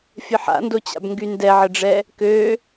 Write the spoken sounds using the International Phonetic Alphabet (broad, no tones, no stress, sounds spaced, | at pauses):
fʲ ə ħ a̰ n d o t͡ɕ a̰ b ŋ ɡ y n d ɛ ʕ ə ɖ͡ʐ ɛ | k ø